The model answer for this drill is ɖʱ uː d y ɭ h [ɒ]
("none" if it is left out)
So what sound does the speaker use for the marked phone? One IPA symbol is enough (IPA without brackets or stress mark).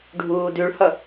ʌ